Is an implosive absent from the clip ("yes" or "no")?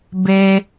yes